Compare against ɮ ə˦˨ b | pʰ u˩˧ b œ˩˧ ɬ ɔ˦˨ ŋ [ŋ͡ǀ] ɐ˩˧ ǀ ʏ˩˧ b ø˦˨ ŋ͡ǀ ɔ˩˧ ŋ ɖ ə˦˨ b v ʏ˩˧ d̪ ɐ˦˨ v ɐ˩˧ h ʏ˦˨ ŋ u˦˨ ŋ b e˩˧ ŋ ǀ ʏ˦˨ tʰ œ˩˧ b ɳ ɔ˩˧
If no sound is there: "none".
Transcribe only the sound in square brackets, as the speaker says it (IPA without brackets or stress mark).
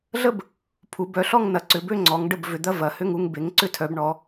n